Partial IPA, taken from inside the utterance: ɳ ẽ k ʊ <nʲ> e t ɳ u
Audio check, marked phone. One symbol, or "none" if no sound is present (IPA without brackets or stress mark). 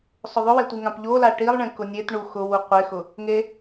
nʲ